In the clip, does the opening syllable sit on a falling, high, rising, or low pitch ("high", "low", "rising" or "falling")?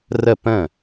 falling